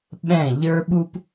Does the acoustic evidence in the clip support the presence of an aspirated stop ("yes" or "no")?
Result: no